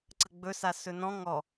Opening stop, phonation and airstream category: click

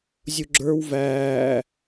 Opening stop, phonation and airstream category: click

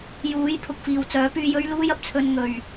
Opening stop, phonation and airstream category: aspirated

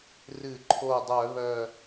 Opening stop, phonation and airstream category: click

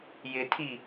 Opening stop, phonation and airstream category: aspirated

